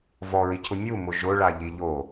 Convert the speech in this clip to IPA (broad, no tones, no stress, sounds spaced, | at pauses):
v ɔ ɹ i cʰ ʊ mʲ u m ʊ ʒ ʊ ɭ a ʎ i ʎ o